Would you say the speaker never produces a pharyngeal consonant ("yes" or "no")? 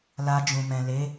yes